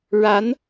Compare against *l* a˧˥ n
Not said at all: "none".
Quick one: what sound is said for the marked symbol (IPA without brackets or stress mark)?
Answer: ɻ